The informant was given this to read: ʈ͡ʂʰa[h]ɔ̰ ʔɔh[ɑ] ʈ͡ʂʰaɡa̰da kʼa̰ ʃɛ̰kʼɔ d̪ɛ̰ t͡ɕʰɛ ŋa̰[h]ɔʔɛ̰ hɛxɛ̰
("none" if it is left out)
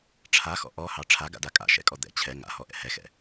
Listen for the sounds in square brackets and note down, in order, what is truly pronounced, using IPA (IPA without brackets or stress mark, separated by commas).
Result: x, ɑ, h